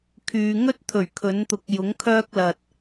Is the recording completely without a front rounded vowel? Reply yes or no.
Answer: no